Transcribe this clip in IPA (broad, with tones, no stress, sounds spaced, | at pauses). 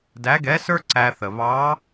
d æ˧˥ ɡ ɛ˧˥ s ə˞˥ ǀ æ˧ θ ə˩ β ɑ˧˥